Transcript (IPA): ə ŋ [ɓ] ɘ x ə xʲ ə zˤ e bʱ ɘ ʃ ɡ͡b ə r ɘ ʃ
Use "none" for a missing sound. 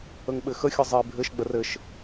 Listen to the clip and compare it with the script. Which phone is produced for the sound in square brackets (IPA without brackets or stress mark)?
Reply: ɓ